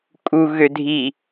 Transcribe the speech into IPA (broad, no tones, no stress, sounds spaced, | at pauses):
kʼ u ɣ ø dʱ i